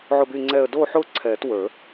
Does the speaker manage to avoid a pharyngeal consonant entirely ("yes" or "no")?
no